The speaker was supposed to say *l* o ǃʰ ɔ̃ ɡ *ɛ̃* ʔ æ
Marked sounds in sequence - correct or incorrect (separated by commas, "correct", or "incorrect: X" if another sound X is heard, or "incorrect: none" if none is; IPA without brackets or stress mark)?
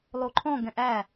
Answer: incorrect: lˠ, correct